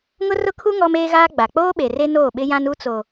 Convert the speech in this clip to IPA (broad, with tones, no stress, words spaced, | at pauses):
ŋʊ˦rʊ˦kʰu˦ ŋɔ˦meː˦ɣaː˦ ɡ͡ba˨ k͡poː˦ɓe˨ re˦noː˦˨ɓɪ˦ jã˦nu˦t͡so˨